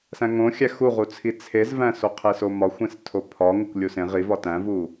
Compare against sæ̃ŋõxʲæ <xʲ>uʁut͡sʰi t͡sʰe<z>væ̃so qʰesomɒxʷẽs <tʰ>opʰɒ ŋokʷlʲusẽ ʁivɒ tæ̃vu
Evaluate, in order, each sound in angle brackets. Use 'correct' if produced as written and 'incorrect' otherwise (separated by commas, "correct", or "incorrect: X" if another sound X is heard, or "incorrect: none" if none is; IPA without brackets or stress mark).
incorrect: x, correct, correct